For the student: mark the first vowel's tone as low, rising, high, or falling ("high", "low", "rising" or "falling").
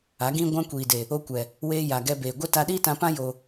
rising